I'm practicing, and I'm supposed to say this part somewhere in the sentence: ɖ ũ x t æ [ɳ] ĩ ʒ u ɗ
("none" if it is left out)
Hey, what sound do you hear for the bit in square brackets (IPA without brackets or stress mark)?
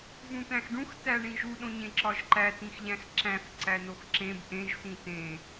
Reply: ɳ